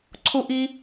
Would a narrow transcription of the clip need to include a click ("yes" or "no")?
yes